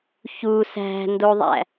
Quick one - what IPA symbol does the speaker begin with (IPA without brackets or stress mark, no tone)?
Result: ç